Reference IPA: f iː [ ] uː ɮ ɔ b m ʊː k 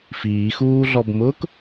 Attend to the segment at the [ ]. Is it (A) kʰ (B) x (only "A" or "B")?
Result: B